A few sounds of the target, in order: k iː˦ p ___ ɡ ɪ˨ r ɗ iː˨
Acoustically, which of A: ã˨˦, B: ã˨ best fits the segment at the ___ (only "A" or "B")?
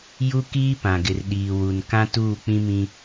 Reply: B